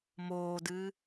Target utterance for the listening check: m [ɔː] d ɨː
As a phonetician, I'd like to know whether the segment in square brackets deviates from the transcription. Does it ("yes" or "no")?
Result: yes